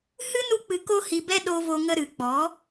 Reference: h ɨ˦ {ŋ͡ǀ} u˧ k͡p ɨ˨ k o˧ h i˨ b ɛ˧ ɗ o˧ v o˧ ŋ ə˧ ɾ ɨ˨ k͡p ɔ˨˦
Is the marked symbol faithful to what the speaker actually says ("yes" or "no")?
no